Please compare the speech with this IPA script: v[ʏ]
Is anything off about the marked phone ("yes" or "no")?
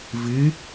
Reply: yes